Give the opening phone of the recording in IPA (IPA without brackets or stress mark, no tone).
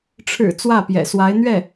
ʈ͡ʂʰ